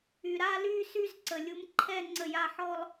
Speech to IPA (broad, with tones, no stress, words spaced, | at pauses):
y˨ɾa˥˧ly˥˧ sy˥˧zǀə˨lʲu˧˥mǃʰɛ˥˧ ŋ͡ǀə˥˩ja˥˧ ħɔ˥˧lˠ